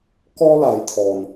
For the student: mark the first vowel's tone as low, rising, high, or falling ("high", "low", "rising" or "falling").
high